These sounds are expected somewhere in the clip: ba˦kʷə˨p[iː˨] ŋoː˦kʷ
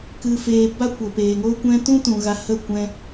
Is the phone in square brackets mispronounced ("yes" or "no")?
yes